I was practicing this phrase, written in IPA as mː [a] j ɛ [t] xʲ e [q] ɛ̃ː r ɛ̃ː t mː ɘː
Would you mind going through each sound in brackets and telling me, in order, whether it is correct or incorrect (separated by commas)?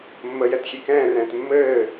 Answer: incorrect, correct, incorrect